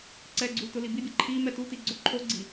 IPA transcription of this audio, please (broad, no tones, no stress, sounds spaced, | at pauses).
ǀ ɛ ɡ͡ǀ u t ʊ l i b i bʲ e ǃʰ i m ɛ t u t i ɡ͡ǀ o ǃʰ o ɡ͡ǀ i